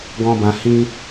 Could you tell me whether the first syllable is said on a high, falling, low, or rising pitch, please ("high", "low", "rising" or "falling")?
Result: high